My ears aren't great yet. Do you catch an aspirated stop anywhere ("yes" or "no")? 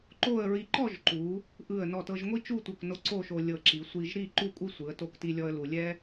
no